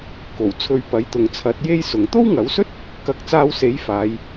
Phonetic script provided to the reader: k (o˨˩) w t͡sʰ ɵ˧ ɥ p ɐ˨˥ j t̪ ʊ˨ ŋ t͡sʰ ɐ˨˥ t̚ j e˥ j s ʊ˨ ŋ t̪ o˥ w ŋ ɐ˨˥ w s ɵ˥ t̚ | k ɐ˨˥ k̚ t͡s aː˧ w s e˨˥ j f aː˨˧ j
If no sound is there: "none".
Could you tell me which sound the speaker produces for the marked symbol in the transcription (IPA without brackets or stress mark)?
o˨˩